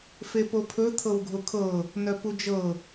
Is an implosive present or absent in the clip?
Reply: absent